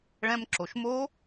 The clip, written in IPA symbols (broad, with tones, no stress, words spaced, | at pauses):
ɭɛ̃˧mǁo˩ʃmo˦˥